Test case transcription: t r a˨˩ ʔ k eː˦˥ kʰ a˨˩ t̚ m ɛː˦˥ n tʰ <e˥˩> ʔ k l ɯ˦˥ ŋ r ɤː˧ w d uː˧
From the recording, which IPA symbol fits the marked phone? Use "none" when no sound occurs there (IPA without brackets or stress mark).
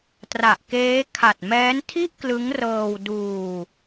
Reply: i˥˩